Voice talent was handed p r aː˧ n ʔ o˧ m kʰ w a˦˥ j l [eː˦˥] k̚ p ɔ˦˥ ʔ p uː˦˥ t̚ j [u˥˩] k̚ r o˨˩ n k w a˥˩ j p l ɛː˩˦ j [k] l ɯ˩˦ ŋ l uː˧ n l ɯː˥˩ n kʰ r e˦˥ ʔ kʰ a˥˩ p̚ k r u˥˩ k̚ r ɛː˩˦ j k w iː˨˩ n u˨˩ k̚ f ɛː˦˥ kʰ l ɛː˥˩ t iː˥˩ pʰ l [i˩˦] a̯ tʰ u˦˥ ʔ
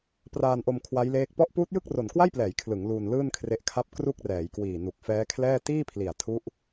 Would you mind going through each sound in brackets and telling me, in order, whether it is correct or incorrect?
correct, incorrect: ɯ˥˩, incorrect: kʰ, incorrect: i˨˩

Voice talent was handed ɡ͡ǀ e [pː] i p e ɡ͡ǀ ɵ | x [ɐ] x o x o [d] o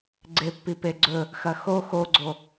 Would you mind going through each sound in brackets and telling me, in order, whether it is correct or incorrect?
correct, correct, incorrect: ɡ͡ǀ

